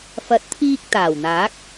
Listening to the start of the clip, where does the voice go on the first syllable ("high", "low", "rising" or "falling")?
rising